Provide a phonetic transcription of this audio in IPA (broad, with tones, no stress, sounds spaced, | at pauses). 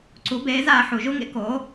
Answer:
ǀ u˩˥ b eː˩˥ z aː˧ ħ u˩ ʒ u˥ ŋ ḛ˥ k oː˩˥